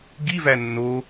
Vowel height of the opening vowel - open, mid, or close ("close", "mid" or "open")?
close